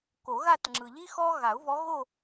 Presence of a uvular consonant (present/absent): absent